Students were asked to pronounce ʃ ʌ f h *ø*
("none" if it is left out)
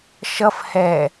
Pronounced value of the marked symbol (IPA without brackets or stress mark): ɛ